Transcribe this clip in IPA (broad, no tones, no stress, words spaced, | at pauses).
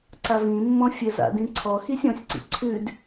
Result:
ǀavĩmːɔ̃ fʲɘza̰ dĩǀʰɔxisʲ ɔ̃sʲǀḭ ǀʰʉd